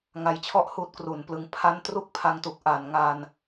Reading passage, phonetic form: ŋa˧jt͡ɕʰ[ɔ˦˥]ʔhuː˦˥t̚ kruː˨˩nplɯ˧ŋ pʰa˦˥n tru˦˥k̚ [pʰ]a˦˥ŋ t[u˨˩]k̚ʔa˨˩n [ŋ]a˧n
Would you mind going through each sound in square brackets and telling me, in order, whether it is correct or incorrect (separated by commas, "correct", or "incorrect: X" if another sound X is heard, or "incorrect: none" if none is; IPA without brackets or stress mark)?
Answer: incorrect: ɔ˥˩, correct, correct, correct